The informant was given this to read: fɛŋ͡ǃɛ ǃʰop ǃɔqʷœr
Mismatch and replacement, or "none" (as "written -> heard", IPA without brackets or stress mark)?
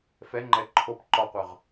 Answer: r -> ʁ